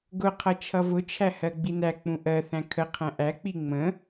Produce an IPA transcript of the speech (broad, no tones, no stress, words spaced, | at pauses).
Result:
ɡʊqʰʌ t͡ʃʰʌvʊt͡ʃʰæ hɜɡ͡binæk͡pũ ʔɜθæ̃ kʰəqʰæ̃ ʔæk͡pi ŋ͡mə̃